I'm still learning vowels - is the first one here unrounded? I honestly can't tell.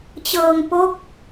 yes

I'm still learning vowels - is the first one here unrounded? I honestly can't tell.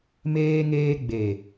yes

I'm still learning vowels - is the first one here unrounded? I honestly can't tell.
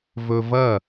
no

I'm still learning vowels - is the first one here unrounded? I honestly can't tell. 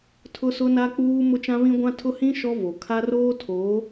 no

